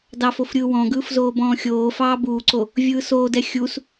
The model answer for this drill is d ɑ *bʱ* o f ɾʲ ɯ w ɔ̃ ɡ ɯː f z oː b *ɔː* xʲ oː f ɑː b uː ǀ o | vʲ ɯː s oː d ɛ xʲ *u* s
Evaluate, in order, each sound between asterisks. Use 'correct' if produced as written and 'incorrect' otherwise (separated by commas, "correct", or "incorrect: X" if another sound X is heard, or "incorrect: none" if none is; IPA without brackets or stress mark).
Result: incorrect: f, incorrect: ɔ̃ː, correct